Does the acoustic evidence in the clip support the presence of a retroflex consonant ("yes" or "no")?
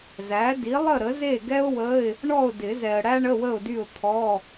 yes